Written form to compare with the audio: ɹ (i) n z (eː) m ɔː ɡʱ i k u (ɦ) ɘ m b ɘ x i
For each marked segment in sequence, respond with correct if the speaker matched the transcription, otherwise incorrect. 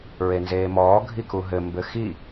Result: incorrect, correct, correct

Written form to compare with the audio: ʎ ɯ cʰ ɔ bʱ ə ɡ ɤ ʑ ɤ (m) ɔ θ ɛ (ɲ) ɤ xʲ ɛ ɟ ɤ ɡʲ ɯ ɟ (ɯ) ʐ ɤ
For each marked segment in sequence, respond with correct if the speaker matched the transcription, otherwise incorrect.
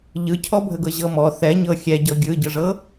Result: correct, correct, correct

